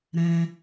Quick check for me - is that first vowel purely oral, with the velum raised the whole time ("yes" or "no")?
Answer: no